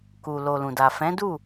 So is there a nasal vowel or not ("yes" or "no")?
yes